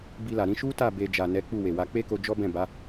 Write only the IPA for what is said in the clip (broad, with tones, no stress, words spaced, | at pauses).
bi˧la˨ɾĩ˨˦ ʃu˦ta˦˨ be˧ d͡ʒa˨ nɛ˨˦ k͡pu˦˨we˨wa˧ k͡pe˦ko˧ d͡ʒɔ˦bɛ̃˦˨ba˨˦